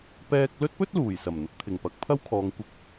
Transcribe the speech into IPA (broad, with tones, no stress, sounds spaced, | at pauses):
p ɛː˧ k̚ l ɵ˥ t̚ p ɵ˥ t̚ l uː˨˩ j s ɐ˨˩ m n̪ ʊ˧ k̚ t̪ʰ ɪ˨˩ ŋ p ɐ˨˥ k̚ pʰ ɐ˥ w kʰ ɔː˨˧ ŋ kʷ ɪ˧ k̚